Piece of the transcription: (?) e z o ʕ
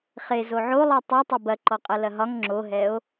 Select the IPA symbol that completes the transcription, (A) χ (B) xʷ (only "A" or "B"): A